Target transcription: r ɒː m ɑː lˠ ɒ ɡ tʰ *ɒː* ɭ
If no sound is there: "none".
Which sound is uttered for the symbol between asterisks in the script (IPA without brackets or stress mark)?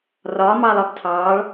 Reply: ɑː